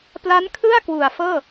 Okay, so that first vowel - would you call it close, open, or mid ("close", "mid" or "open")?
open